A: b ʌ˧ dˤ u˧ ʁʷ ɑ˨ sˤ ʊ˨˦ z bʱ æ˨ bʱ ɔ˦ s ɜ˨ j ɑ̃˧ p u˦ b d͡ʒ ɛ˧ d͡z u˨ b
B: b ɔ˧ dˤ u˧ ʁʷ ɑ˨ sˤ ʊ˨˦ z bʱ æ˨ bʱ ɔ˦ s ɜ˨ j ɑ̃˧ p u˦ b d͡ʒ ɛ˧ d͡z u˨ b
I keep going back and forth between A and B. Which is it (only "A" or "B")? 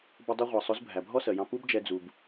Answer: A